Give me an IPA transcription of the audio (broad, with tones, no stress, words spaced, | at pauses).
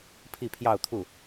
pʰi˥˧pʰjɑ˥˧ʊ̯t̪ʰu˥˩